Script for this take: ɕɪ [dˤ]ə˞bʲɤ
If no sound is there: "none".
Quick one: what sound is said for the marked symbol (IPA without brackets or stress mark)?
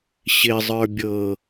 zˤ